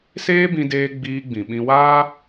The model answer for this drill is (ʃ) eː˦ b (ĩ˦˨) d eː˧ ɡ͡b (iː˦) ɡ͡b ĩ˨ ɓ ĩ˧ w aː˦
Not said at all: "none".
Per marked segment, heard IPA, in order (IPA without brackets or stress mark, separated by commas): s, ĩ˧, iː˧